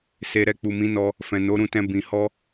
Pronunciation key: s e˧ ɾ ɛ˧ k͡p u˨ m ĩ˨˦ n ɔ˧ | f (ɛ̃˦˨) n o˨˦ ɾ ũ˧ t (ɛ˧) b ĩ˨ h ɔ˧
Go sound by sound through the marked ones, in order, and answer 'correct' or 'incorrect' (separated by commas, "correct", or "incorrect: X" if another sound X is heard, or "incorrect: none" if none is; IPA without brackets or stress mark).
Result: incorrect: ɛ̃˨, incorrect: ɛ̃˧